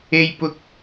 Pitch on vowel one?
high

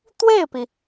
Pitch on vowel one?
falling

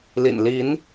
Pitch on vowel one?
low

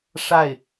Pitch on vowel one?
falling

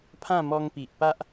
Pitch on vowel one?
falling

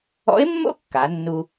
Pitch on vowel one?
rising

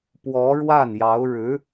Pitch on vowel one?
rising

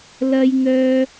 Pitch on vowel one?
high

